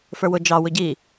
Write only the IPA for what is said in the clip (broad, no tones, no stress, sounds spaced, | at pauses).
f ə˞ w ʊ d͡ʒ ɑ w ʊ ɟ i